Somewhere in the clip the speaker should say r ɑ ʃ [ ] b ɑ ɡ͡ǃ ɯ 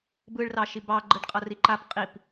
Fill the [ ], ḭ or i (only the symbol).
i